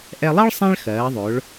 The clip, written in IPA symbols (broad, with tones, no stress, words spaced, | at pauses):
ʔɛ˧lˠɜ˥ɭ sˤẽ˥ɭxɜː˩˧ðˤɵ˩˧ɭ